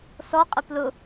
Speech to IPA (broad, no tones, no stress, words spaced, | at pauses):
sɔqʼə plʊ